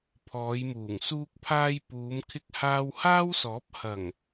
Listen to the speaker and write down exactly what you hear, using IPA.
pʰɔː˨˧jmuː˨˩ŋ suː˧k̚pʰaː˧j puː˨˧mkʰɪ˧k̚ haː˧whaː˥wsɔː˨˥p̚ hɐ˨˩ŋ

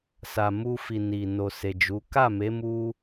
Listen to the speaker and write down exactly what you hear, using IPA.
sa˨mu˧fi˨ ni˨ no˨se˨ d͡ʒu˨˦ ka˦˨me˨˦ mu˦

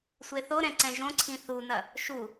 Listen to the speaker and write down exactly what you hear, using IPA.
sʷeθoɾɛ̃ ǀɛ̃ʒõǀʰĩ θunɐ | ʃu

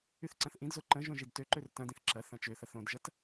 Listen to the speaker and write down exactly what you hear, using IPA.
yθǀɐ̃θʔĩdzo ǃə̃ ʒõʒidtøǃør tɐ̃dĩθ ǁɐ θɐ̃t͡ʃøθɐθ õdʒɐt

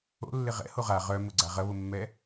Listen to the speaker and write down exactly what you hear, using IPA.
o̰lːɪ ʁɛ̰ho ʁa ʁœmʊɡ͡ǀa ʁɐβʊmːɛ

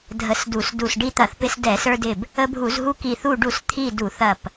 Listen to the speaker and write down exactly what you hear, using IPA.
dʱə˧˩sdu˧˩˧s du˧˩s ɖi˧t̪ɐ˧˩˧θpɪ˧s dɛ˧˩˧sə˞˧dɪ˧˩b | ə˧bʱu˧˩˧zɦu˧ki˧˩ θu˧˩ɖu˧˩˧s t̪ʰi˧˩ du˧˩˧θɐ˧˩p

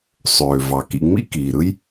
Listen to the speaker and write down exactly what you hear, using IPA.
sˤøː˩vɑ˩ kḭ˨ŋ͡mḭ˦kiː˩ɾɯ˦j

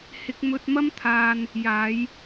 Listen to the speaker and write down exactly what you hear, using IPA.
hɪ˧k̚mɵ˧t̚mɐ˥mt̪ʰaː˧n | jaː˨˧j

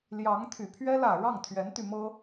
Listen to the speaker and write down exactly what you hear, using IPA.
ljɑ˧˥ŋ t̪ʰy˨˩pʰɥɛ˥ lä˨˩ ɻɑ˥˩ŋt̪ʰɥɛ˧˥nt̪y˧mɤ˥

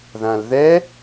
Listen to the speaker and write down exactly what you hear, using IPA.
ðãlðɛ

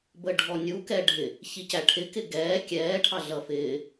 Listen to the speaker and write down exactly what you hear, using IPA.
bəɖʱɔnʲu kɛɖʱɪ | çicæʈʰɪ kɪɡɛː kʲɛː ʈʰɑɮʌfɪː

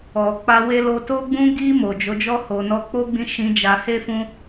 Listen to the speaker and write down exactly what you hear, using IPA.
ɔ˨ k͡pa˧we˧lo˧ to˧ɡ͡bũ˧ɡi˧ mo˨d͡ʒo˨˦d͡ʒɔ˦ ho˧ nɔ˧k͡po˦ɡ͡bĩ˧ ʃĩ˧d͡ʒa˧he˦fũ˦

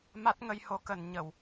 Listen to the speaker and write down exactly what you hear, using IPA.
ma˦˥t̚ŋə˧jho˨˦kə˨˩n ɲə˧˩˨w

